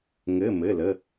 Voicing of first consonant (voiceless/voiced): voiced